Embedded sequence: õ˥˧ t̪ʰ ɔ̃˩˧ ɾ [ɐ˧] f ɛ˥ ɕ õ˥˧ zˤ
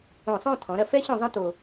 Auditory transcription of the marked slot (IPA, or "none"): ɐ˧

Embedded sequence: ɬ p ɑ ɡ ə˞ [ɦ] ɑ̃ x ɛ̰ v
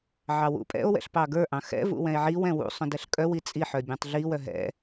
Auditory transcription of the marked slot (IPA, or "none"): ʔ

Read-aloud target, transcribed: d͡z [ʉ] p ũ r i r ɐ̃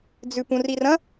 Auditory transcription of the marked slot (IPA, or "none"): ʉ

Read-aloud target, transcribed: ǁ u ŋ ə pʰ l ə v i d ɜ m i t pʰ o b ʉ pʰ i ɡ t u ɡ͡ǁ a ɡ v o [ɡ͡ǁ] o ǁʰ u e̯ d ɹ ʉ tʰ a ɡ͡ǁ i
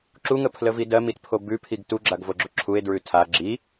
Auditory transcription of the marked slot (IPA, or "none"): ɡ͡ǁ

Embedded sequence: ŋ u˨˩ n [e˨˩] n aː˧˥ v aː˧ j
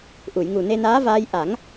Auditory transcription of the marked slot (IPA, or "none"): e˧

